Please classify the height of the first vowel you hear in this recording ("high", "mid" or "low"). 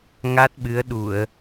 low